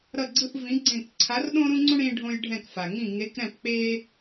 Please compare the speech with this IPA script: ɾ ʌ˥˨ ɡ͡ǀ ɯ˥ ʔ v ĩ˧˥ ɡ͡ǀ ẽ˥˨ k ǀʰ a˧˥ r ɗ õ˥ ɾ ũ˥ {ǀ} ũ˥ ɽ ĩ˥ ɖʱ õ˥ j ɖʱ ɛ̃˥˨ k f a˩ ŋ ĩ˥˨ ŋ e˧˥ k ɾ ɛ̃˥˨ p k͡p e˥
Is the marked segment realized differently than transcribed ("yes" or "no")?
yes